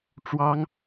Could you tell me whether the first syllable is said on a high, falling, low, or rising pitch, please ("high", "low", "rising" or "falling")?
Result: high